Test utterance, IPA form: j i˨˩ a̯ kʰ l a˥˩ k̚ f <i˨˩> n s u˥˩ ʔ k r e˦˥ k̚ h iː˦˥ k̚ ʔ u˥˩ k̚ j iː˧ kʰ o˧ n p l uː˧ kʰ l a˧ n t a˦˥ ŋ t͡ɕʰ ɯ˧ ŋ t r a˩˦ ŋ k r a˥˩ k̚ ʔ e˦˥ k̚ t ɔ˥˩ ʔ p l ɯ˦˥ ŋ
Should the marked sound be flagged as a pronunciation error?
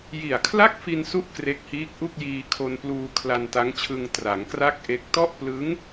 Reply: yes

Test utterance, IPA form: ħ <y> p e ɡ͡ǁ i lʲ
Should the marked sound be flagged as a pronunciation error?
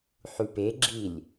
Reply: no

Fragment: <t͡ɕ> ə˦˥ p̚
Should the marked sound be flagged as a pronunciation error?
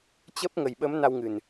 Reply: no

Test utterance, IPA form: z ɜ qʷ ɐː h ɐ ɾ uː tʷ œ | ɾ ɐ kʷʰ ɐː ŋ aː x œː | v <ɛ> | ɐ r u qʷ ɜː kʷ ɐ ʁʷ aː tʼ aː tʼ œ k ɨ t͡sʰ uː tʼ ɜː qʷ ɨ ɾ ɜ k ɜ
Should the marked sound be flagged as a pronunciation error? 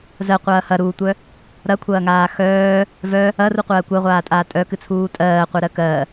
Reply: yes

